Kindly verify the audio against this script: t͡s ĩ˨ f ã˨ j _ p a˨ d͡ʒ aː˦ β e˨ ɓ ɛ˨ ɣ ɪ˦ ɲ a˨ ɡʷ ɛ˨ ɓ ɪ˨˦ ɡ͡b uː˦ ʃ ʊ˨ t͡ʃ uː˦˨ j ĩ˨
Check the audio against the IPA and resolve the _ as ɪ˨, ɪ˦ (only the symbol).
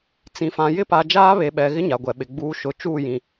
ɪ˦